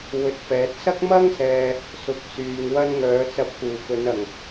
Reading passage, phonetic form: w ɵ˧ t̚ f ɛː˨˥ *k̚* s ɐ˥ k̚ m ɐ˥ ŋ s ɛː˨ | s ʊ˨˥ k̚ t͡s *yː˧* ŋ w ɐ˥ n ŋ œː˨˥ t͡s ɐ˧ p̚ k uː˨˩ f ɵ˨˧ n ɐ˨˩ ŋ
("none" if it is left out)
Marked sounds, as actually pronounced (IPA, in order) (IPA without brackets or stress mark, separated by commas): t̚, yː˨